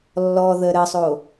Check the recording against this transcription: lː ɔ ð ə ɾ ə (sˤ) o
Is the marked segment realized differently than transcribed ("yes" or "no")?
no